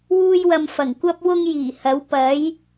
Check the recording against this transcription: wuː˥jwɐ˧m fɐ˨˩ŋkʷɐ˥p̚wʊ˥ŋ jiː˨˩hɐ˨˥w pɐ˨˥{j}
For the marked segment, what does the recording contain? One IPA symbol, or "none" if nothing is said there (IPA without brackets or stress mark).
j